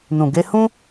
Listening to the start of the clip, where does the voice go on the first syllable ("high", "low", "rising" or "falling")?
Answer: low